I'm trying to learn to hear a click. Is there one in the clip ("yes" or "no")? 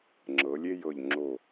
yes